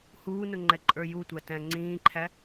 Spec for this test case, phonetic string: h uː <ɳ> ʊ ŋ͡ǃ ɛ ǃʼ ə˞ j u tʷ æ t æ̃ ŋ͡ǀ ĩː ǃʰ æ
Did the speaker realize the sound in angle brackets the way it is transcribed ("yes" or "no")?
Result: no